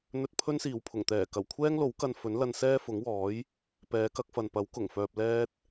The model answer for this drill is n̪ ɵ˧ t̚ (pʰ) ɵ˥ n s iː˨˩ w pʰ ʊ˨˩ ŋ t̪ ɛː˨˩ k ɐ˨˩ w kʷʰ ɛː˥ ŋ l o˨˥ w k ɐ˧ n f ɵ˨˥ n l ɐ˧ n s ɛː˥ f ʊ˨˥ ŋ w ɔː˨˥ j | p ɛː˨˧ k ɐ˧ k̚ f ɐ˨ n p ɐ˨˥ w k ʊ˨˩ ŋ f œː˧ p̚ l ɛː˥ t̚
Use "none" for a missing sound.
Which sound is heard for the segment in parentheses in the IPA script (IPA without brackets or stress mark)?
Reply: pʰ